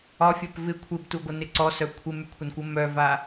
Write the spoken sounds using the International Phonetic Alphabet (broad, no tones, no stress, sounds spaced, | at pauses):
ɒ fʲ œ p v ɪ kʷʰ ɪ b t u ɡʷ ə n ɪ ǀ ɔ s œ kʷʰ ɪ m y kʷʰ ə n kʷ ɪ m œ v a